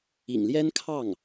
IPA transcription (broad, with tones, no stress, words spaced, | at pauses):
ḭ˨˩ŋljɛ˥nkʰɑ˥˩ŋ